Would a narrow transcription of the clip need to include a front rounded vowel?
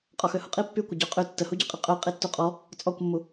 yes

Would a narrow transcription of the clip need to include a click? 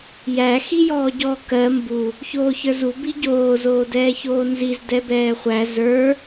no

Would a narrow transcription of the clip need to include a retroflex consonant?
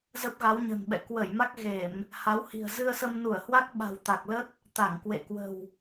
no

